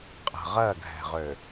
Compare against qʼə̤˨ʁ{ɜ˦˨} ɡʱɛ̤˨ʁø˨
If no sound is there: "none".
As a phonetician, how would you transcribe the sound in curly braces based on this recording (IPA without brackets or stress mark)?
ɜ˦˨